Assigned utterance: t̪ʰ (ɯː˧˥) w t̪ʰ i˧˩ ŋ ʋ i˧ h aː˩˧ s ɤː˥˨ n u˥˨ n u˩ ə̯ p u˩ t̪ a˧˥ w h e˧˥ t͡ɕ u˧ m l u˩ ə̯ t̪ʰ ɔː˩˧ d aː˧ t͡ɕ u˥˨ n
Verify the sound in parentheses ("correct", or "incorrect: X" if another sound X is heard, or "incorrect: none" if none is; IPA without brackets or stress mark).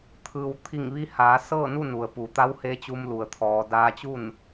incorrect: ɯː˩